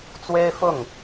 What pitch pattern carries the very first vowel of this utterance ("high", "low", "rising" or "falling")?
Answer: high